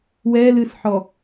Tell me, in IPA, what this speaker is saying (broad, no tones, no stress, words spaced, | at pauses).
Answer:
wɛlɨsħɔ